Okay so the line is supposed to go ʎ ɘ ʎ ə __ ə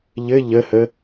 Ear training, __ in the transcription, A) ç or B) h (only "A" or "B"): B